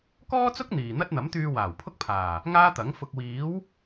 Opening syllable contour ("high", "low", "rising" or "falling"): high